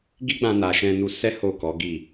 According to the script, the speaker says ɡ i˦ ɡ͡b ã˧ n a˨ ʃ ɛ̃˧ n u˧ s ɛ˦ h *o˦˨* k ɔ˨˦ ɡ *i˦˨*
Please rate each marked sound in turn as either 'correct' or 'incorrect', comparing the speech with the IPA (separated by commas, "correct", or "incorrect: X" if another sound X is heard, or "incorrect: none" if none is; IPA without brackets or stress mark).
correct, correct